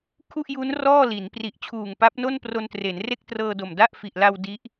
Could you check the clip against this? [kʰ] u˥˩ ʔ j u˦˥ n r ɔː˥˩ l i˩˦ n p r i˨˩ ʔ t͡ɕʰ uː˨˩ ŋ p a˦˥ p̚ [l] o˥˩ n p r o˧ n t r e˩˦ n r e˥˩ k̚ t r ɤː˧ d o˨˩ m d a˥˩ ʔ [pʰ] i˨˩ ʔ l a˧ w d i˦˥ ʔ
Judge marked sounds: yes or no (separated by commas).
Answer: yes, no, no